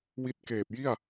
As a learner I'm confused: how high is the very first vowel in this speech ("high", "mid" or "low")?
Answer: high